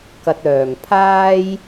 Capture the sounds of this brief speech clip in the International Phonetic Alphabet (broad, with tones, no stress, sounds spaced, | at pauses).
k ɐ˧ t̚ œː˨˩ ŋ pʰ aː˥ j